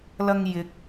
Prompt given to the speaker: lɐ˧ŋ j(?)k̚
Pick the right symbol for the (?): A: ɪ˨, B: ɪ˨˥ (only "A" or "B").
A